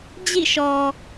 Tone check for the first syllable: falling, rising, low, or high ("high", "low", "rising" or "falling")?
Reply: falling